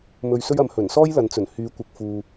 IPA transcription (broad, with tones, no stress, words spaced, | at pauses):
mɵ˨ɥsɵ˧ɥɐ˨m hɵ˨˩nsɔː˥jlɐ˨nt͡sɵ˨˩n hyː˨˧kʷɪ˨k̚fuː˨